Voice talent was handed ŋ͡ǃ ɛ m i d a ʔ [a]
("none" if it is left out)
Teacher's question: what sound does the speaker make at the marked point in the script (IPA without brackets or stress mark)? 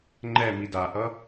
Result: ʌ